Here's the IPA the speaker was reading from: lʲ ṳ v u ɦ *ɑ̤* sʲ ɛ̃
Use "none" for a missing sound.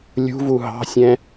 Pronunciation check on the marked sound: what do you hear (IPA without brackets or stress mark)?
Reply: ɑ̤